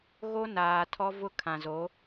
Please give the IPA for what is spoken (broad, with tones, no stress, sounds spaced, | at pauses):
ɣ o˦ n aː˨ tʰ ɔ˦ v ʊ˦ kʰ ã˨ z o˨˦